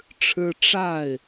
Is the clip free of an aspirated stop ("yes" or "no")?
no